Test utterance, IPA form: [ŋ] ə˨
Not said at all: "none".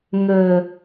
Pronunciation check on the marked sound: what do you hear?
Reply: ŋ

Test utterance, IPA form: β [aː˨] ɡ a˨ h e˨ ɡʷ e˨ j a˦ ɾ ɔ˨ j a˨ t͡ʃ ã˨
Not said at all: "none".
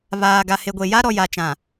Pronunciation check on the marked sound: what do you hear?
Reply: aː˨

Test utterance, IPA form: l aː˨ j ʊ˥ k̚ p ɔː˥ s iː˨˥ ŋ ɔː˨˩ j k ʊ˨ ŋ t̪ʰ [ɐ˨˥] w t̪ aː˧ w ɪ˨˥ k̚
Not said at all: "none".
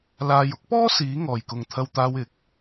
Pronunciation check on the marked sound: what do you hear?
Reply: ɐ˧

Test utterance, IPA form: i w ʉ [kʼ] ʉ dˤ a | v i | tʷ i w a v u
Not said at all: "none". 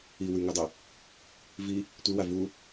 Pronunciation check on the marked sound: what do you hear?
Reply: ŋ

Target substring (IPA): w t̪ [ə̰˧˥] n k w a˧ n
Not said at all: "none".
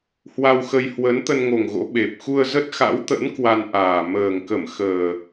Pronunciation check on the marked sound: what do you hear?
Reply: ə̰˧˥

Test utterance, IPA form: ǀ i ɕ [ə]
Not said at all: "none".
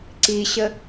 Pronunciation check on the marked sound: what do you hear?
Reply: ə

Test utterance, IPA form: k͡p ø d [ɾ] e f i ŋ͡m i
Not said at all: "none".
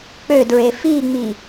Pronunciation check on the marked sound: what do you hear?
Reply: ɹ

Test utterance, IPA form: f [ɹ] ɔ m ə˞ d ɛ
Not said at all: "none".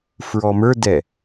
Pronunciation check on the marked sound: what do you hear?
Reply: ɹ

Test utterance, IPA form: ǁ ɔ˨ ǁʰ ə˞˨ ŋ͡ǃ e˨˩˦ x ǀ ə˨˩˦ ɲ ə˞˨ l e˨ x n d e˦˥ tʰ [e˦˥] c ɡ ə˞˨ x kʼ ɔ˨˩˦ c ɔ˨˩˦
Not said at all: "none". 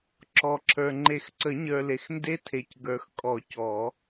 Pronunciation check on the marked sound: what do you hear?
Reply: e˨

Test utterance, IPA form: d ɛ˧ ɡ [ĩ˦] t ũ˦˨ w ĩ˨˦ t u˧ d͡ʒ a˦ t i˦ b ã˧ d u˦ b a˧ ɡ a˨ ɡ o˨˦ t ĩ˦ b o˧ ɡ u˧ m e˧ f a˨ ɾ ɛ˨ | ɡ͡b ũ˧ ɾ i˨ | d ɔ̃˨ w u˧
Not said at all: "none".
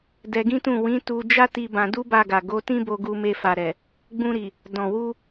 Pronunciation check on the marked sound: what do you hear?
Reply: ĩ˦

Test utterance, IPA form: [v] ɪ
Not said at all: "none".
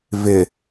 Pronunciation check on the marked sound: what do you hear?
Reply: v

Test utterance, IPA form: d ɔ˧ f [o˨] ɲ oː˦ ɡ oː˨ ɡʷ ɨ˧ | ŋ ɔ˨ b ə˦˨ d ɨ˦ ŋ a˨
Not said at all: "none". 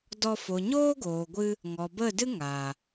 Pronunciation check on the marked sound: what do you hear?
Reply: o˨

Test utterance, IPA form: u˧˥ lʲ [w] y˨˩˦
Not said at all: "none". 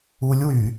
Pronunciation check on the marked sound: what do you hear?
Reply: w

